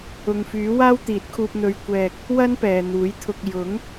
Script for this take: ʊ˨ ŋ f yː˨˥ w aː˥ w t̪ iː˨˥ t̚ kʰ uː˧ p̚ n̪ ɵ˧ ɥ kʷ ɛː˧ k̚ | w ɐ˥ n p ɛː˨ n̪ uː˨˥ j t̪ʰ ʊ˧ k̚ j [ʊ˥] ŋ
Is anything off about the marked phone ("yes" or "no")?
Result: yes